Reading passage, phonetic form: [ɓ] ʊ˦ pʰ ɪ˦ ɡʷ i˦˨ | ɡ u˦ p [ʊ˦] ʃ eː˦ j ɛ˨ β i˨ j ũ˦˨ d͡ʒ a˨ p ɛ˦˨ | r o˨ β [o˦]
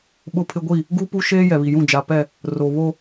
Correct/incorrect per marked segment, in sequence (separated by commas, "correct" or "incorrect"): correct, incorrect, correct